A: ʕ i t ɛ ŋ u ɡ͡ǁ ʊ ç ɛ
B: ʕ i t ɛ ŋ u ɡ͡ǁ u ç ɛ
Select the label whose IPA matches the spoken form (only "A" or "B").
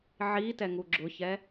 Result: A